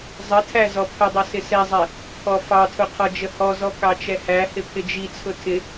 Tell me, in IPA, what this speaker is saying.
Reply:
zˤ ə tʰ æ z ɔ pʰ ə dˤ ʌ s ɪ s ɛ zˤ ɛ | pʰ ɔ f ɑ tʰ ʊ qʰ ɔ d͡ʒ ə h ɔ z ɔ k ɑ t͡ʃ ɛ h æ h ɪ pʰ ɪ d͡ʒ i t͡sʰ ʊ tʰ ɪ

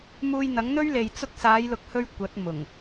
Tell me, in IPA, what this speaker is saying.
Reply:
m uː˧ j n̪ ɐ˨˥ ŋ n̪ ɵ˥ ɥ l e˨ j t͡s ʊ˧ k̚ s aː˨˧ j l ʊ˨ k̚ h ɵ˧ ɥ kʷ ɐ˨˥ t̚ m ʊ˨˩ ŋ

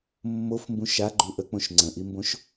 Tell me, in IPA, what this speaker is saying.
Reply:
mː o f m b ũ ʃ a ɡ͡ǃ u ʔ ə k͡p õ ʃ ŋ͡ǀ ə̃ ʔ i m b õ ʃ

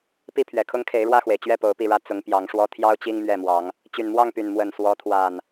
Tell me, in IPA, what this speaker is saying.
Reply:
p i˥˨ pʰ ɥ ɛ˨˩ kʰ ʊ˦ ŋ kʰ e˨˦ ɪ̯ ɻ w ä˥˨ x w e˩ ɪ̯ t͡ɕ ɥ ɛ˥˨ p o˨˦ ʊ̯ p i˥˨ ɻ ä˦ t͡s ʊ˨˦ ŋ p j ɑ˨˦ ŋ ʂ w ɔ˦ t̪ʰ j ɑ˦ ʊ̯ t͡ɕ i˦ ŋ m ɥ ɛ˥˨ m w ɑ˨˦ ŋ | t͡ɕ y˨˩ n m w ɑ˥˨ ŋ p y˨˩ n m w ə˥˨ n s w ɔ˨˦ t̪ʰ w a˨˩ n

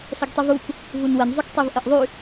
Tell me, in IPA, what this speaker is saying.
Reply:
s ə ɡ tˤ i v u k | v u n w ə n zˤ y k tˤ i v ʔ ə ʔ ðˤ y

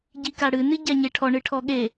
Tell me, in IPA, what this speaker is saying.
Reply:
ɟ i k a ɽ ɨ n ɨ ɟ a ɲ e ʈʰ ɔ ɳ ɨ ʈʰ ɔ ɠ e

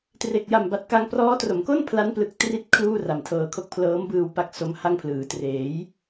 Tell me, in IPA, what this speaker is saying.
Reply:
t r e˨˩ k̚ j a˨˩ m b a˨˩ t̚ k a˧ ŋ p r ɔː˦˥ t r o˩˦ m k o˥˩ n pʰ l a˦˥ n p l ɯ˨˩ k̚ t r i˦˥ t̚ kʰ l uː˥˩ r a˨˩ m tʰ ɤː˧ kʰ o˥˩ k̚ pʰ l ɤː˦˥ m b ɯː˧ w p a˦˥ k̚ s o˦˥ m h a˥˩ ŋ pʰ l ɯː˨˩ t r eː˩˦ j

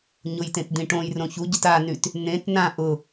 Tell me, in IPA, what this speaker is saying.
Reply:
ɲ ʊ j t ẽ t d̪ ĩ ʈ õ j r õ ç u ɟ ʊ t a n y t | n̪ ẽ t n ã ʔ ʊ

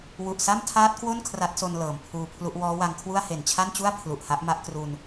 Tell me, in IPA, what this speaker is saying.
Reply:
w u˨˩ ʔ s a˥˩ m tʰ aː˦˥ t̚ k w o˥˩ n kʰ r a˦˥ t̚ s o˧ n l ɤː˩˦ m pʰ uː˧ pʰ l u˦˥ ʔ w ɔː˦˥ w a˧ ŋ kʰ w u˥˩ a̯ h e˨˩ n t͡ɕʰ a˥˩ n t͡ɕ u˥˩ a̯ pʰ l u˨˩ ʔ h a˦˥ ʔ m a˦˥ ʔ k r u˧ n

